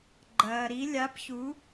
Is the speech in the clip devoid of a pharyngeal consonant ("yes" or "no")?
yes